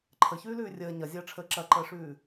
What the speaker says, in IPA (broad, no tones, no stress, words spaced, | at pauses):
ǃʰəçʉːlʉː rʲəː ɲɐzʲɐːʈ͡ʂʰəː ǁɐǃəːʂʉː